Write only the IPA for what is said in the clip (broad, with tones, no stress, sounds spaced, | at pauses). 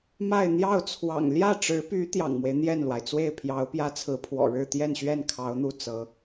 m a˥˧ ɪ̯ n̪ j ɑ˥˩ ʊ̯ t͡sʰ w ɑ̰˨˩ ŋ l j ä˥˩ ʈ͡ʂ ɻ̩˧˥ p y˧˥ t̪ j ɑ̰˨˩ ŋ m w e˦ ɪ̯ n̪ j ɛ˥˩ n l w a˩ ɪ̯ t͡s w e˥˩ ɪ̯ pʰ j ɑ˧˥ ʊ̯ p j ä˥ t͡sʰ ɹ̩˧˥ pʰ w ɔ̰˨˩ ɻ ɻ̩˥˧ t̪ j ɛ˥˧ n ɕ ɥ ɛ˥˩ n kʰ ɑ˧˥ ʊ̯ n̪ u˥˩ t͡s ɤ˧˥